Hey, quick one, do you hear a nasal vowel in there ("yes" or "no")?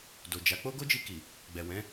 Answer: yes